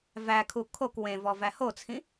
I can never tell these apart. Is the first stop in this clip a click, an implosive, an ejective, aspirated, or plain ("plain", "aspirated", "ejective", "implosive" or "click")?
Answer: aspirated